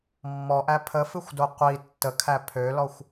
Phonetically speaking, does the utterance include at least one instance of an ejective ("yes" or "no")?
no